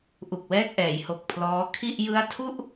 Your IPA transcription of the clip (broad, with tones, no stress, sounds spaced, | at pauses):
ʔ u˨˩ k̚ w ɛː˥˩ k̚ ʔ ɛː˩˦ j h o˨˩ k̚ pʰ l ɔː˦˥ kʰ i˥˩ ʔ j ɯ˦˥ a̯ tʰ u˥˩ ʔ